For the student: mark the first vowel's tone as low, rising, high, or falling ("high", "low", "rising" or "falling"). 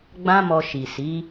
high